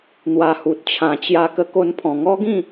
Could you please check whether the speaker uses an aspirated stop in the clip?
yes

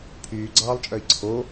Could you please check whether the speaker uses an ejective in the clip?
yes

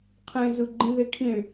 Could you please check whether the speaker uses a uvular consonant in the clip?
yes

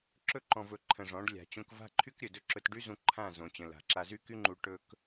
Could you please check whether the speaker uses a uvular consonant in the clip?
no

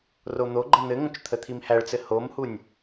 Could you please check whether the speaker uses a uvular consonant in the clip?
no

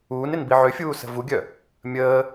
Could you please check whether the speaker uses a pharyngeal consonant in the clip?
yes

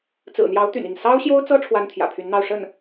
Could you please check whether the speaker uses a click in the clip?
no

